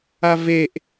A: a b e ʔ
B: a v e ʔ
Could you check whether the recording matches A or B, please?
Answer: B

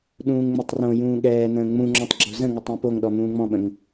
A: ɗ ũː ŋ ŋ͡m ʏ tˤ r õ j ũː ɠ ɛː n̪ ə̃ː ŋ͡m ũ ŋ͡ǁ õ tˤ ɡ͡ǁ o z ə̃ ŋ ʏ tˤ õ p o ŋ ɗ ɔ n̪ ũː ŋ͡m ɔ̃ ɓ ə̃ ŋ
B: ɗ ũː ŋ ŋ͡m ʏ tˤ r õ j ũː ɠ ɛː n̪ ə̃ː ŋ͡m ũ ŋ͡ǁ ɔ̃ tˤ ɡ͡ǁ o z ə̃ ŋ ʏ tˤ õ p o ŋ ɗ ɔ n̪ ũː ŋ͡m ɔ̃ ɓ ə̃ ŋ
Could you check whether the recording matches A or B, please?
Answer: B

